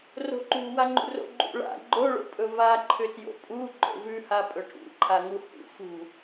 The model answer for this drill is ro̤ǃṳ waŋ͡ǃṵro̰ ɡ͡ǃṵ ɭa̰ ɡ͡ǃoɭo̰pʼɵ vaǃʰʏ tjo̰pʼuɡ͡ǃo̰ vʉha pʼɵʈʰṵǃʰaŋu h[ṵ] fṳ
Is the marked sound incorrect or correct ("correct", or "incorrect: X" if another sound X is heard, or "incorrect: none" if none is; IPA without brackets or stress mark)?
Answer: correct